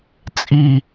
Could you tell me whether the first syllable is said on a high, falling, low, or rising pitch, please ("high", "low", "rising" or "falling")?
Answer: high